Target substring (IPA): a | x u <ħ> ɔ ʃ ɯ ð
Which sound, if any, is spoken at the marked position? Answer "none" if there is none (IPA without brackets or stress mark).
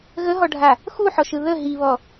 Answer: ħ